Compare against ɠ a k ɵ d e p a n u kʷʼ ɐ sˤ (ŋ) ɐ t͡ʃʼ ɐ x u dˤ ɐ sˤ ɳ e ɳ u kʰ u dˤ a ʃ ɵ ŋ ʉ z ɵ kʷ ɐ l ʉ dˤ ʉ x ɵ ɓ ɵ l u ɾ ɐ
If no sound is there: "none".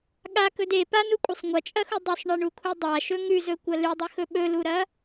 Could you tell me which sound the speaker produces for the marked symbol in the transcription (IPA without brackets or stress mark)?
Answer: ŋʷ